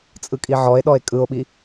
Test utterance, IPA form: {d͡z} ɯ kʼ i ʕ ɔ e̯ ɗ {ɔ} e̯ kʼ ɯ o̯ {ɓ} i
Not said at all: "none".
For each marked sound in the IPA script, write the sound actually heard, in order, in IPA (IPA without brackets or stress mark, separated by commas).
t͡sʼ, ɔ, ɓ